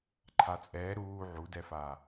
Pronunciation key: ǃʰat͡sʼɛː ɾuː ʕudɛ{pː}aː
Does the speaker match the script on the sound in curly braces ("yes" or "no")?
no